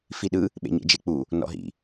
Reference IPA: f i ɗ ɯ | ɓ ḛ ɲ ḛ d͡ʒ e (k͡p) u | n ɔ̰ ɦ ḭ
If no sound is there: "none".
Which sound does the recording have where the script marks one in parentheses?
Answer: k͡p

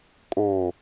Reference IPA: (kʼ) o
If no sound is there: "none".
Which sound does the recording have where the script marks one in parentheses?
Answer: kʼ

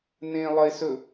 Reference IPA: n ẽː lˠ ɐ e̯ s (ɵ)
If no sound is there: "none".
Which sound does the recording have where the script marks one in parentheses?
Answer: ɵ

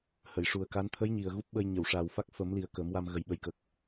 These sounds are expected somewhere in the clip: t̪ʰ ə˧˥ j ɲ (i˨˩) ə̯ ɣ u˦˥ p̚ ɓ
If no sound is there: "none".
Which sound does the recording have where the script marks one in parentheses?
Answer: i˨˩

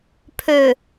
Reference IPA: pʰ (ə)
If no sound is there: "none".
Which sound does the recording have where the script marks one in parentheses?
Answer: ø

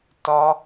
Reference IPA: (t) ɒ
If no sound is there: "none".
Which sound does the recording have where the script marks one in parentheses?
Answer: t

